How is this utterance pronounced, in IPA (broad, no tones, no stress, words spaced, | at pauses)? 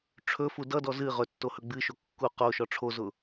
ʈ͡ʂʰɵfu dʌdɔ zɨ ʁɵtːo hɵɡ͡bɨʃo kːu qo ʃɔʈ͡ʂʰozʊ